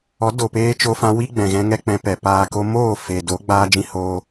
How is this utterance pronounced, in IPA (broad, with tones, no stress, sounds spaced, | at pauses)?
ɔ˨˦ d o˨ p eː˧ t͡ʃ o˧ f ã˧ w i˦ ɡ͡b ɛ̃˨ ɣ ɛ̃˧ ŋ ɛ˦ k͡p ɛ̃˧ p ɛ˨ p aː˨ k o˧ m oː˦˨ f e˨ d o˨˦ ɡ͡b aː˦ d͡ʒ ĩ˦ h oː˦